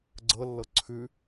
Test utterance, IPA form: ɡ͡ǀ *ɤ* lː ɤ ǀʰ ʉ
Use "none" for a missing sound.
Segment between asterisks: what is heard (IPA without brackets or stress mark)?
ɤ